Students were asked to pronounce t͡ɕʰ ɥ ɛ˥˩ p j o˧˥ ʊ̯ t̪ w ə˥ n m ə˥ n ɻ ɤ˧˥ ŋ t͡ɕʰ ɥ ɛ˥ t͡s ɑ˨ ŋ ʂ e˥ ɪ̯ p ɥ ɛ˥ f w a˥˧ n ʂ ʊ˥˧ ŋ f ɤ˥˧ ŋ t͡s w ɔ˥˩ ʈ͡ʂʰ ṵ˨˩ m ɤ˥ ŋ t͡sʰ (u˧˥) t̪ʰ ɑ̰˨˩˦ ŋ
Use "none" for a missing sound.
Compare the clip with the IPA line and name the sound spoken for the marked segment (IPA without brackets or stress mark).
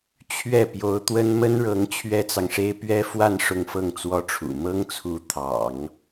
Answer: u˧˥